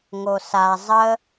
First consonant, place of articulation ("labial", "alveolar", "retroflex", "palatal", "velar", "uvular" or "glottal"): velar